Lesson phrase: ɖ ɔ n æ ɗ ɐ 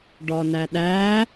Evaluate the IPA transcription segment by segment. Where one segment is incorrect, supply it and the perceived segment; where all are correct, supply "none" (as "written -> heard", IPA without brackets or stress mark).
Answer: ɐ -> æ